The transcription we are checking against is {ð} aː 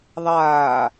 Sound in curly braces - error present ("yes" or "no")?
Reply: yes